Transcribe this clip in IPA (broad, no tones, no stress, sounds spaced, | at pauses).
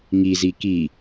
ŋ i z i k i